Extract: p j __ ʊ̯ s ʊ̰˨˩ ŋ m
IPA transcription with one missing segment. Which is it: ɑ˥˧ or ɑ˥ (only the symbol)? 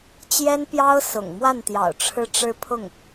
ɑ˥